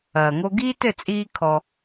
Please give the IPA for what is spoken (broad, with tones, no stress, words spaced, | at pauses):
ɐː˩ŋo˧ɡiː˥ tɘ˥˩t͡sʼiː˧ kʰɔ˩